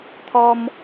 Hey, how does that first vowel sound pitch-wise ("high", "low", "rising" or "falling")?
high